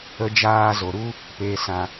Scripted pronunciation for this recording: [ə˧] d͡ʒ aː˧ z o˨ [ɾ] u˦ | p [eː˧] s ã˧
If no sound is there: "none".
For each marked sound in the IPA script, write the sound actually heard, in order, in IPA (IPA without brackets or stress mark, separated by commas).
ə˧, ɾ, eː˧